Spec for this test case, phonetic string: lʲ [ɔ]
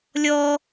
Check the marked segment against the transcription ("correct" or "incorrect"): correct